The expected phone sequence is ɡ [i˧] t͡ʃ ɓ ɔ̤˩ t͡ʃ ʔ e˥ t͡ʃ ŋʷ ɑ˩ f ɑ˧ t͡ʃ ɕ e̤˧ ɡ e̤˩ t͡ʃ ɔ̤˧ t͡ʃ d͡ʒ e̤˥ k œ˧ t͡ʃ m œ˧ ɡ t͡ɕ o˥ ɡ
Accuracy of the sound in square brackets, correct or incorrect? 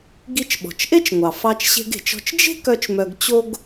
correct